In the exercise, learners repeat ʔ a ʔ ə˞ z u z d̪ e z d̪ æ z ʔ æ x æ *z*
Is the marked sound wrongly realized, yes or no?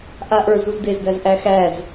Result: no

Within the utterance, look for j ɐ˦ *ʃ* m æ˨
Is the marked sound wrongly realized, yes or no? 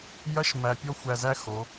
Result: no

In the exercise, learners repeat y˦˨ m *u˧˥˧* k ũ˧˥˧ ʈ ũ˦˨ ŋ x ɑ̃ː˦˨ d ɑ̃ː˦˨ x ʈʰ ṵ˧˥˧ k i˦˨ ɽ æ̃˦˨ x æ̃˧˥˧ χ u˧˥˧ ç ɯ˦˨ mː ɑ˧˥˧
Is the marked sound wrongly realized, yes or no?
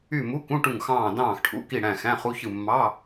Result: no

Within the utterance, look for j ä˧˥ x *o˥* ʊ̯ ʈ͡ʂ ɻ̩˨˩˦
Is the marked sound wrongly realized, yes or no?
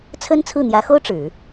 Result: no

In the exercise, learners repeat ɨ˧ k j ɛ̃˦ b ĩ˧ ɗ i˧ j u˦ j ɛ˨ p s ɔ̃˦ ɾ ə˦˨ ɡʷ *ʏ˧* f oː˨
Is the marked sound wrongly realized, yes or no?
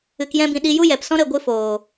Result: yes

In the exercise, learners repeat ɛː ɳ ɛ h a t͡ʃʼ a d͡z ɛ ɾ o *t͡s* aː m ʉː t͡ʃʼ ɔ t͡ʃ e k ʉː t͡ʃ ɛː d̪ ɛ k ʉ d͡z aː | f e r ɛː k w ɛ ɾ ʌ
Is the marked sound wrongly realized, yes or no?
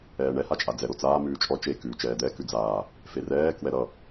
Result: no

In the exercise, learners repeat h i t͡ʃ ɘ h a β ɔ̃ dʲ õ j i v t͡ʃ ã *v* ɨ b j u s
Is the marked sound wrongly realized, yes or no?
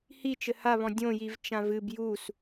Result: no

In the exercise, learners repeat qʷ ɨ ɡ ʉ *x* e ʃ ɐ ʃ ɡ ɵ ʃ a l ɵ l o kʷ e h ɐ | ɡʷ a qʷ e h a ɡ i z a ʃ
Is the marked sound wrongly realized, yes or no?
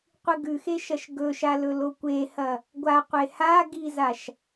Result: no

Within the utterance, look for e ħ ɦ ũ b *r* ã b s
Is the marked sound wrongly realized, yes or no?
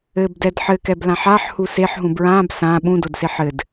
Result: yes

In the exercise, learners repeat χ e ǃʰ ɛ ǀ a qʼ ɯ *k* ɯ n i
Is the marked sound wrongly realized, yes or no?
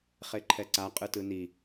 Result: yes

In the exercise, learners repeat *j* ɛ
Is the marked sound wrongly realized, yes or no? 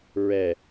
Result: yes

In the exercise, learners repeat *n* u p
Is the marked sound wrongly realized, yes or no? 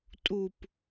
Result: yes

